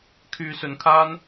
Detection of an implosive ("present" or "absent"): absent